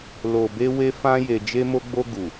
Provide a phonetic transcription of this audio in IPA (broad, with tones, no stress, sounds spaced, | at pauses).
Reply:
l o˨ b e˧ w e˦ f ã˦ j e˧ d͡ʒ e˧ m o˧ ɡ͡b o˧ ɡ u˨